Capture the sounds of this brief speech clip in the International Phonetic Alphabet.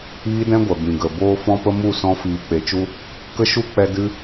iː˦dɛ̃˦ɡʷɛ˨ bĩ˨ɡə˨ boː˧fɔ̃˧pə˧ mu˦˨ sɔ̃˧fiː˨ k͡pe˨t͡ʃu˧ | kə˦ʃu˦ k͡pɛ˧dɨ˧

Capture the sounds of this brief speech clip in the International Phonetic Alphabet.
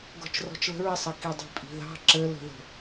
ɡɔ̤t͡ʃrɔ̤t͡ʃlə̤ɹ ɪsˤʌ kidˤi̤pʼi̤ðɑ̤ ǁələ̤ðə̤

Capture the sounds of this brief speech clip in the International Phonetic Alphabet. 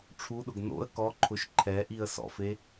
ʈ͡ʂʰuɗʊɡ no̰ə̯ kɔǃʰʊʃ ǃʰɛʔiə̯ sɔ̰fe

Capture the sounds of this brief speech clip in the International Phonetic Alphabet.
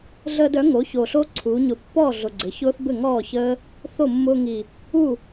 ɮəː˧dœ˩˥ ŋo˩˥ço˨˩ɬo˦˥ ǀʰuː˩˧ɲʊ˨˩pːɔː˥˩ ɮʊ˨˩ɡ͡ǀɘ˩˧ çʊː˦˥θbɘ˥˩ŋɔː˥˩ çəː˦˥ | θo˥˩mːʊː˧ ŋi˨˩ | u˥˩

